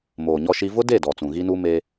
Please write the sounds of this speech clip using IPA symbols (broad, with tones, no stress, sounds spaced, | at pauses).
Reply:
m oː˨ ɲ ɔ˦ ʃ i˦ v ʊ˦ d e˦˨ d ɔ˨ t͡s ũ˨ ɣ i˦ n u˦ m e˦